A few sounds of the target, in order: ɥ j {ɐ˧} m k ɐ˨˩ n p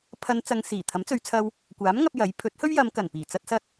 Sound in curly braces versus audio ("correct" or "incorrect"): incorrect